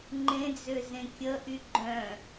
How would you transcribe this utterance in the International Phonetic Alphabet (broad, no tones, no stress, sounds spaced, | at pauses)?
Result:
ŋ͡ǃ ẽ d͡z ø z ẽ kʲ ə ʔ y ɡ͡ǃ œ̃